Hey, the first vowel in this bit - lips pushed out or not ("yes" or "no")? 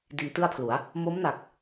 no